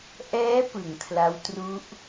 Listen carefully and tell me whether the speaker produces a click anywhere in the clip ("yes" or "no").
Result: no